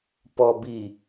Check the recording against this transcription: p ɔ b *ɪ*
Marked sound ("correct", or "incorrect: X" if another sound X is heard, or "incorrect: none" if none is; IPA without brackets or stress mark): incorrect: i